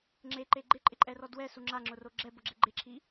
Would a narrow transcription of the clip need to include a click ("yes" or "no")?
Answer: yes